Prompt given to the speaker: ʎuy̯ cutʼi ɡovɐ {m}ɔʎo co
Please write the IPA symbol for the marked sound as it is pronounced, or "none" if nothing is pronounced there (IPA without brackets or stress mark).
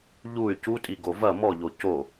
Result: m